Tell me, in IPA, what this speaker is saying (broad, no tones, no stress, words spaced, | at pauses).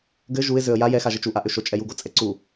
ɡɘ ʒuɪ̯zøə̯ ja jɛxaʒɘt͡ʃ uʔaʔøʃ ot͡ʃʼɛ juɡot͡sʼɛ ǀu